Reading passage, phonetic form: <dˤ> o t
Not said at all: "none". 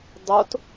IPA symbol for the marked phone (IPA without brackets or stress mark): dˤ